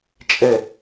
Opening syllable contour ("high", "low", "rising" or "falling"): falling